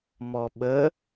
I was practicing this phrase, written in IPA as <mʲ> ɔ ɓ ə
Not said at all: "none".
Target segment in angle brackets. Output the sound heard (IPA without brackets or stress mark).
m